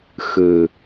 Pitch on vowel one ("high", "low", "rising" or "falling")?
low